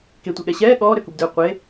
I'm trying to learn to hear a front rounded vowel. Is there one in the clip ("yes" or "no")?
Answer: yes